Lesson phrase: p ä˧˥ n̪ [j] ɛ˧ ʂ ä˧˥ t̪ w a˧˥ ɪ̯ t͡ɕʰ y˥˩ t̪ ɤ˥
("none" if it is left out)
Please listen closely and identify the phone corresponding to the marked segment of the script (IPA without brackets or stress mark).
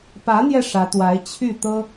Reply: j